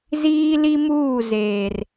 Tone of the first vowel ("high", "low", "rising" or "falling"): high